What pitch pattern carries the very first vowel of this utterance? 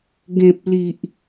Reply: low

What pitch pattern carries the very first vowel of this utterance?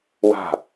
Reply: falling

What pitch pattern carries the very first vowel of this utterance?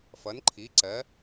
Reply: rising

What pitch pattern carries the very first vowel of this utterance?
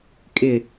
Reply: low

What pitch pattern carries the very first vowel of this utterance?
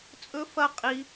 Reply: high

